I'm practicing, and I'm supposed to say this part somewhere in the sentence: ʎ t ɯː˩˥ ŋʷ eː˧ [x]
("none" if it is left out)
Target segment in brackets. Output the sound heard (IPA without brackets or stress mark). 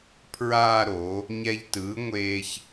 ç